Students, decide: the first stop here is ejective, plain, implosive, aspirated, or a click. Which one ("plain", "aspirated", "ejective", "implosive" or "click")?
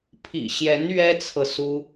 aspirated